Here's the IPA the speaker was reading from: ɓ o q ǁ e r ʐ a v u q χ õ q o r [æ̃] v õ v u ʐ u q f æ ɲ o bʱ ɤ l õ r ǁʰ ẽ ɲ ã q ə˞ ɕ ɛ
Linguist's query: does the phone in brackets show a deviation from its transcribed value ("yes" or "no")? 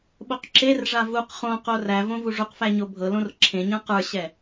yes